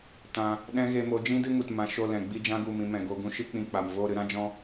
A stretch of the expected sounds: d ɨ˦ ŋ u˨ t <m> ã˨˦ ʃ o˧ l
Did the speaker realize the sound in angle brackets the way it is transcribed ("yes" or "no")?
yes